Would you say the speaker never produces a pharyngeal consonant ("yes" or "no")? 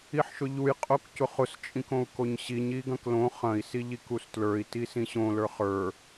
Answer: no